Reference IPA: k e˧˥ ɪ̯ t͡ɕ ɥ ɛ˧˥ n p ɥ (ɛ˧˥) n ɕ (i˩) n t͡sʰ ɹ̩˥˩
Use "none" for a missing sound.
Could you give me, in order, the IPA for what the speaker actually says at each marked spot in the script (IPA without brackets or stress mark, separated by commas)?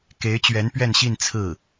ɛ˥˧, i˥˧